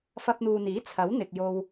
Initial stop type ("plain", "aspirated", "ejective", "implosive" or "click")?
plain